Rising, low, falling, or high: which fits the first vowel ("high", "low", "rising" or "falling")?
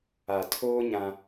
low